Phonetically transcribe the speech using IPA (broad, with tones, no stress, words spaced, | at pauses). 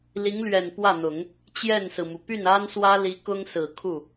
li˧˥ŋlɥɛ˨˩n pwä˥˩n̪ʊ˨˩˦ŋ | t͡ɕjɛ˥˩nsɹ̩˩mu˩ py˥˩na˥nswä˥ li˧˥kʊ˥ŋsɹ̩˨˩ kʰu˥˩